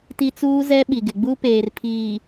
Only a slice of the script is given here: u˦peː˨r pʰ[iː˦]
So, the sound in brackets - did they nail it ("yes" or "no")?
no